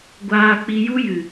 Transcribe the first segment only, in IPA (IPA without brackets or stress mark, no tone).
ɡʷ